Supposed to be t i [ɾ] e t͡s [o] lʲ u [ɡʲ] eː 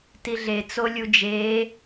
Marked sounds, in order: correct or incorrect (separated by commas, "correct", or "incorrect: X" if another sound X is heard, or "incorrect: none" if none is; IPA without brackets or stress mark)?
incorrect: ɮ, correct, incorrect: d͡ʒ